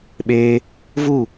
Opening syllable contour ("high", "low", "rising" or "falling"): high